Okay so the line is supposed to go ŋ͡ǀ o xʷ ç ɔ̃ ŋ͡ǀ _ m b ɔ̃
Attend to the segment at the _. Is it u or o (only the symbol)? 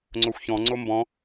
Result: o